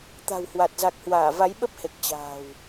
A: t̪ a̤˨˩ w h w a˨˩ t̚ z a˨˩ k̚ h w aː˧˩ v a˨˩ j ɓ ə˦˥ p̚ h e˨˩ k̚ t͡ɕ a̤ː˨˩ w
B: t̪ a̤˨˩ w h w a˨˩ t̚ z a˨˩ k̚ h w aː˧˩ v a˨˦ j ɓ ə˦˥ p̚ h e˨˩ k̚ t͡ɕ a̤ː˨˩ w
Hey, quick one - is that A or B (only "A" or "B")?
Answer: B